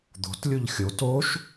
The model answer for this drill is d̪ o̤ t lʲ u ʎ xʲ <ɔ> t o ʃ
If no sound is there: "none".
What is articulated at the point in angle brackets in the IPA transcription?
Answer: o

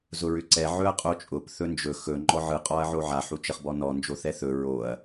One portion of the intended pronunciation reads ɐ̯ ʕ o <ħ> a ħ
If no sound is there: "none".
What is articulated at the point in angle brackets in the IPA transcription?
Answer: ʕ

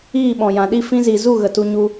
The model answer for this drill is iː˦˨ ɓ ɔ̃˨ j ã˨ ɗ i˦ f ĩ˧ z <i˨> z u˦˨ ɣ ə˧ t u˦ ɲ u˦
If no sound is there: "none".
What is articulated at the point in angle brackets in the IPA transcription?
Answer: i˨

